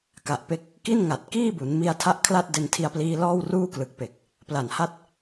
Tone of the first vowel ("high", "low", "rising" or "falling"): low